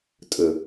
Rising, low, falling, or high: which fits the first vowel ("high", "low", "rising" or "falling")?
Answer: low